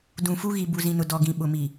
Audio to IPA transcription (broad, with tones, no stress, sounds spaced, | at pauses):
d ũ˨ f u˦ ɣ i˨ b u˨ z ĩ˨ n ʊ˨ d ɔ˨ ɡ ĩ˨ ɓ ʊ˨ m i˨